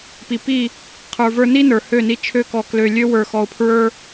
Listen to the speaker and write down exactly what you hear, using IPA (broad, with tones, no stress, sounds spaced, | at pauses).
p i˨ p i˦˨ | qʰ ə˞˨ v ə˞˧ n i˦ n ə˞˨ h ø˦˨ n i˧ t͡ʃʰ ø˦ k ɔ˧ k l ø˧ lʲ ø˦ w ə˞˧ x ɔ˧ ʊ̯ pʰ ɹ ə˞˦